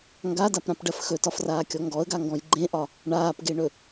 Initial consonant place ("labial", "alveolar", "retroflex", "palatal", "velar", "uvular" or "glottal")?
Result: velar